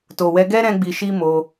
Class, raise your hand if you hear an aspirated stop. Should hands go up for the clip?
no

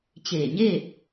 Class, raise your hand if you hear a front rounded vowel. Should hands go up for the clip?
no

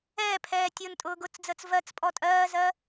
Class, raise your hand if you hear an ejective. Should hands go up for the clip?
yes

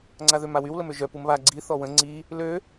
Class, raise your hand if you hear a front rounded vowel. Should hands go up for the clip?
yes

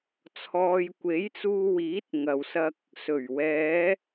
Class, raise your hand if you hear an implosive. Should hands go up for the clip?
no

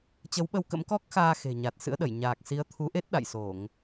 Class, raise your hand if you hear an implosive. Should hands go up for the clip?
yes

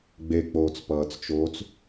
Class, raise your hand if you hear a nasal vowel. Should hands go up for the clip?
no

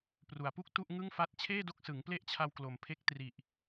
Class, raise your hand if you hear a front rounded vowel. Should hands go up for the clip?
no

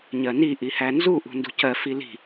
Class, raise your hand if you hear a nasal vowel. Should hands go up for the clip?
no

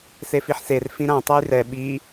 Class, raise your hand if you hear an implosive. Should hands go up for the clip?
yes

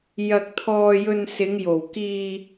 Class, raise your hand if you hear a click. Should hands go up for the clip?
no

